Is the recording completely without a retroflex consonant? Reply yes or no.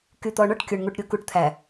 no